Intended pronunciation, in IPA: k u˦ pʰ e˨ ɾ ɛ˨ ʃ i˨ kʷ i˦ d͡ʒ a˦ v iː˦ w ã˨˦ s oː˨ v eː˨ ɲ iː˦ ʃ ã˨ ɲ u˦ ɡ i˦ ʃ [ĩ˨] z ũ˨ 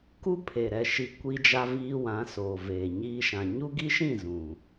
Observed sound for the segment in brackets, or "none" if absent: ĩ˦˨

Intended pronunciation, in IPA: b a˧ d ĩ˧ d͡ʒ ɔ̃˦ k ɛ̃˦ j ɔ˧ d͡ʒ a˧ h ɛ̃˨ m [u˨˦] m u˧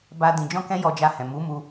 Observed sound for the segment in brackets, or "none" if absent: u˨˦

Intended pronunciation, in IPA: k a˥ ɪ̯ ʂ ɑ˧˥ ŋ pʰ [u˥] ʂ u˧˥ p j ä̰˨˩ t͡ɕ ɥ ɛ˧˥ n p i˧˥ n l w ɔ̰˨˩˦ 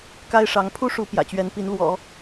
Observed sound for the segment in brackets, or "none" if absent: u˥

